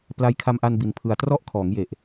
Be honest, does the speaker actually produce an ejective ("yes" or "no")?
no